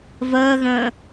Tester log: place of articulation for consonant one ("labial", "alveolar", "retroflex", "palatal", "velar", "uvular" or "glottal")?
labial